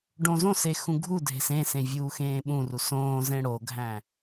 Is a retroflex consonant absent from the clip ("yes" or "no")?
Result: no